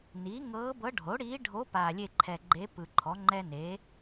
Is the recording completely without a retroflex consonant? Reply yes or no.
no